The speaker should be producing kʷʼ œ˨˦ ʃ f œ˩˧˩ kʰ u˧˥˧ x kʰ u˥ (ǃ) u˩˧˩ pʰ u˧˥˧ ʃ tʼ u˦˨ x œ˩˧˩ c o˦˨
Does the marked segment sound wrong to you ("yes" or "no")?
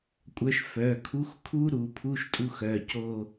yes